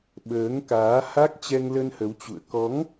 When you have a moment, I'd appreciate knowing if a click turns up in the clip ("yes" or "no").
no